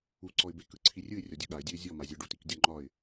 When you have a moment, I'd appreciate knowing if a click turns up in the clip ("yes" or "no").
yes